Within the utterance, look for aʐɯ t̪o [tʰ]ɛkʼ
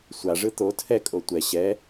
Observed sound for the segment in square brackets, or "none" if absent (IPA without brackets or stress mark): tʰ